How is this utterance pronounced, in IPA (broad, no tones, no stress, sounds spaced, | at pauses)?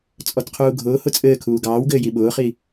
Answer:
t͡sʼ ɔ t qʰ uː ɡʱ ʊː h ʊ t͡sʼ ɘː kʰ uː ɡ ɑː w ɡ ɘː j i ɓ ʊː χ i